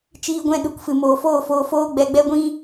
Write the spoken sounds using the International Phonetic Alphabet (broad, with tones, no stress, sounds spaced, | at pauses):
t͡ʃ iː˧ ɡʷ ɛ̃˧ ɗ u˨ k f ɨ˨ m oː˨ f oː˦˨ f oː˧ f oː˦ ɡ͡b ɛ˧ ɡ͡b ɛ˦ ɡʷ ĩ˦